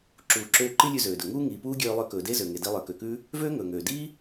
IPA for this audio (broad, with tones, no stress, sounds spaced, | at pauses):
ǁ uː˩ ǁ øː˧ ǃ i˥ lʲ ʉ˧ z øː˩ d ɵ˩ ŋ uː˥ ŋ iː˩ p uː˥ ɡʲ øː˧ lˠ ø˧ k ɵː˩ d e˥ z ø˩ ŋ e˩ d i˧ lˠ ə˞˩ k ø˩ k ʉː˥ | v øː˥ ŋ ɵː˩ ŋ øː˩ d iː˥